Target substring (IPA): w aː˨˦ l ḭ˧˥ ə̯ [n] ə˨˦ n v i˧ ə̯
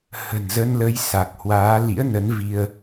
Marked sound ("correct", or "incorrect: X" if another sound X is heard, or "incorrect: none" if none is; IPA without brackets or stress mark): correct